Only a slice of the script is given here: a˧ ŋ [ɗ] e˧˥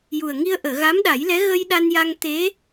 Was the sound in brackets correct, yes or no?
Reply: no